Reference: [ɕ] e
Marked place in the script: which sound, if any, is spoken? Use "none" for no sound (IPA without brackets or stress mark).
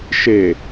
ʃ